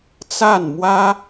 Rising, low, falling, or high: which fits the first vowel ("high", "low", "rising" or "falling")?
falling